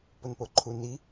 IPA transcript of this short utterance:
p ʊ n p o ǃʰ u n i

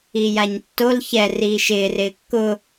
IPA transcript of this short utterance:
i j a ɲ tː o l ç ɛ r iː ʃ ɪː r ɪː kː ʊ

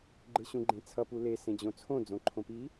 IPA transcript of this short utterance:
ɡ͡ǃ ɯ ɕ ũ ɡ͡ǃ ẽ t͡sʰ ʌ p u l e s ẽ d͡ʑ õ t͡sʰ õ d͡z õ ǃʰ õ p i

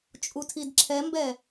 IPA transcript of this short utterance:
t͡ʃʼ u tʰ i d ǁʰ ɛ m b ɛ

